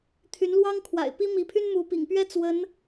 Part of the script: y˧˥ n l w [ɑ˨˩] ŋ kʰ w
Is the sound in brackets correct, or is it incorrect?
incorrect